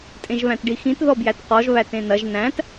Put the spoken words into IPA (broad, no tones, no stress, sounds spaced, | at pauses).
tʼ ẽ ʒ β æ̃ t ɖ i x ĩ t ð ɔ b j æ t q ɔ ʒ β æ t ẽ n ɐ ʒ n æ̃ t